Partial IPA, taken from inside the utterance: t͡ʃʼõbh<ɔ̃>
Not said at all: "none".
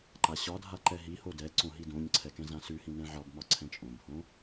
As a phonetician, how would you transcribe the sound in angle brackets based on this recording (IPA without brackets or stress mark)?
õ